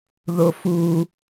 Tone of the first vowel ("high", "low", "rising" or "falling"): low